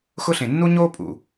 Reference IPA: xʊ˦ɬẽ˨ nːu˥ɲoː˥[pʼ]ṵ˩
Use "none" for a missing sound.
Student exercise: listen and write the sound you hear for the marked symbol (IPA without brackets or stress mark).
pʼ